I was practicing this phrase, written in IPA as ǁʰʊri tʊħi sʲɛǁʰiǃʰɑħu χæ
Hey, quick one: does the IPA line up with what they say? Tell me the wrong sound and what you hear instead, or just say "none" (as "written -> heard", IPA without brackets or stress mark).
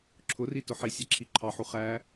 none